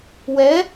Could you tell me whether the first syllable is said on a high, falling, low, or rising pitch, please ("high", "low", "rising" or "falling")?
rising